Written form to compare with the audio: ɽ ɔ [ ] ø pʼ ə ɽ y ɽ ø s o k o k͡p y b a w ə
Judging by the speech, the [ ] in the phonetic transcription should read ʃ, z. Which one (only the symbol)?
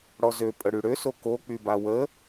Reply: z